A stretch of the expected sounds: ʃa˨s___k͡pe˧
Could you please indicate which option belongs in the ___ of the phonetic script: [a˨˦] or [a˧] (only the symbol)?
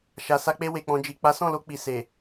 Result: a˧